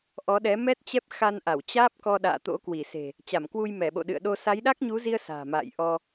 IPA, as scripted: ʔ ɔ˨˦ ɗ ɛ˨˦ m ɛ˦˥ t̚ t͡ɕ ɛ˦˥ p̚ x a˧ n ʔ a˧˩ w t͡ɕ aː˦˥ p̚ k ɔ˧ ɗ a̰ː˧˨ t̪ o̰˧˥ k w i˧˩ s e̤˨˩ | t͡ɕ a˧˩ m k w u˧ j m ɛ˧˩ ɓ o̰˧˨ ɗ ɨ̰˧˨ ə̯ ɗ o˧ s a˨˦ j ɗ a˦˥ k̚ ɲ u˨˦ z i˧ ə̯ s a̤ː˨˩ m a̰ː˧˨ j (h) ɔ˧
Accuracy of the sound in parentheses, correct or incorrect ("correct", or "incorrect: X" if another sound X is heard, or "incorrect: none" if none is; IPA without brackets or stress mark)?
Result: incorrect: ʔ